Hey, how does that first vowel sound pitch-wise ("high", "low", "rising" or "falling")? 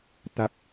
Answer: low